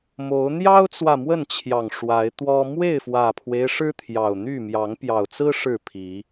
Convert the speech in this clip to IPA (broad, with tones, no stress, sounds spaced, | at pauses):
m o˨˦ ʊ̯ n̪ j ɑ˦ ʊ̯ t͡s w ä˨ m w ə˥˨ n t͡ɕʰ j ɑ˨˩ ŋ ʂ w a˨˦ ɪ̯ t̪ w ɔ˦ m w e˥˨ ɪ̯ f w ä˨˩ pʰ w e˦ ɪ̯ ʂ ɻ̩˦ t̪ʰ j ɑ˨˩ ʊ̯ n̪ y˥˨ m j ɑ˨˦ ŋ p j ɑ˨˩ ʊ̯ t͡s ɹ̩˦ ʂ ɻ̩˥˨ pʰ i˨˦